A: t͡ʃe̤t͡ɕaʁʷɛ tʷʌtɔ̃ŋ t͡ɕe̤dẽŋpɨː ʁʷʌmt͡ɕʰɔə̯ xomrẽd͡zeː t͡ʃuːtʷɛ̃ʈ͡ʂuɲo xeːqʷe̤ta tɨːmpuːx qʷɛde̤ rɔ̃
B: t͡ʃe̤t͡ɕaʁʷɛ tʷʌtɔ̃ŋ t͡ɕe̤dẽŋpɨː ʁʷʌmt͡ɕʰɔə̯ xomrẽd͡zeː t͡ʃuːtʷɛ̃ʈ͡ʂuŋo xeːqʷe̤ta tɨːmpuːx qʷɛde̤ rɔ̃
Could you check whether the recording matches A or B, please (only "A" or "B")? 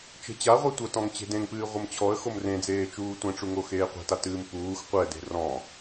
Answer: B